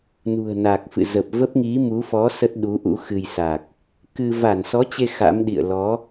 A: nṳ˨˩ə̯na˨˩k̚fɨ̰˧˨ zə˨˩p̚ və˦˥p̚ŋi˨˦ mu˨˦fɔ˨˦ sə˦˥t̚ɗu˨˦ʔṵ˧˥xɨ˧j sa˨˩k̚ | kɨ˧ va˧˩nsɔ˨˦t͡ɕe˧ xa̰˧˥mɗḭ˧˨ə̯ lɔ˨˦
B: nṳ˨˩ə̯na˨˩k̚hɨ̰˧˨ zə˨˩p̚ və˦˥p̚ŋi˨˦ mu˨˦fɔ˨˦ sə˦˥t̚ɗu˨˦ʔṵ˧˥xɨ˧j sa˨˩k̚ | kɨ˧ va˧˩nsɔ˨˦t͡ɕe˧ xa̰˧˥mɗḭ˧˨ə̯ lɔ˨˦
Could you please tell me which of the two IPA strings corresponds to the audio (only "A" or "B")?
A